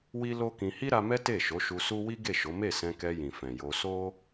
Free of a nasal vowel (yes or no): no